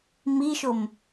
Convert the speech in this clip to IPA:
miʃom

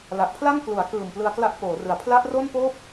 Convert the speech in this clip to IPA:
la˨˩ʔpʰla˥˩ŋ klu˩˦a̯kɯː˨˩m plɯ˧a̯kla˦˥ʔpoː˩˦rɯ˩˦a̯ pʰla˦˥ʔro˥˩npoː˥˩p̚

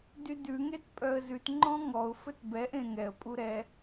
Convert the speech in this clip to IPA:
dydʉ ŋetpʼœə̯zʉt ŋ͡ǃɔ̃ŋɔʊ̯ fɵtbɛʔẽ ŋɛə̯pʼu ɾɛ

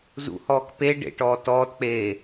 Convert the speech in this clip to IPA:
zṵhɔːk pe ɖḛʈɔː tɔːtk͡peː

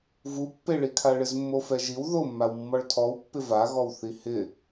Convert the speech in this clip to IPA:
vupːeɭikʰa ɭɪzmːofɛʒiw ðomːawmːɔɭ tʰɔwpːɪ vaɣɔwθi hɪ

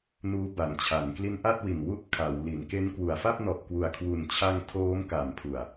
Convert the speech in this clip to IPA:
nuː˦˥ba˩˦nt͡ɕʰa˩˦n kli˦˥nʔa˥˩t̚wi˨˩n wu˥˩ʔkʰa˩˦wli˩˦n ke˦˥n kwu˩˦a̯fa˥˩p̚ nɔ˨˩ʔkwu˨˩a̯kʰwu˨˩nt͡ɕʰa˧ŋ tʰoː˦˥mka˩˦mpʰu˨˩a̯

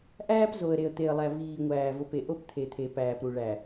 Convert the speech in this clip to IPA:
ʔæː˦p zo˨ə̯ ɾe˨ə̯t̪e˨ə̯lˠæ˨ viː˨ŋʷæː˨vo˨p e˨ʔo˦pt̪ʰe˨t̪ʰe˨ pæː˨pɾu˨ ɭæ˨

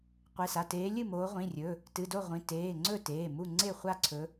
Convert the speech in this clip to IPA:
qʷe˩˧˩sa˩˧˩ teː˨˦lʲɨ˥˨moː˨˦ ʁʷĩ˩˧˩rʲɵ˩˧˩ | tɨ˩˧˩do˥˨ ʁʷĩ˩˧˩teː˩˧˩ ŋ͡ǀɵ˥˨teː˩˧˩ mu˥˨ ŋ͡ǀe˥˨χʷa˥˨ǀʰɵ˨˦

